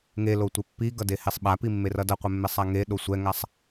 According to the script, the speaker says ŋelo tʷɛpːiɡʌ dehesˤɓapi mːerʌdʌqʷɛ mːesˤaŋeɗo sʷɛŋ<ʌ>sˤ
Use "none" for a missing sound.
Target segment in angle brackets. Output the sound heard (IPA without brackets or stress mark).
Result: a